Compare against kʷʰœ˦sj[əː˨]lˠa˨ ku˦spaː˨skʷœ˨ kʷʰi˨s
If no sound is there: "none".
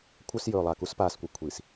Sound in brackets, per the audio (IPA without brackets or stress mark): ɵː˨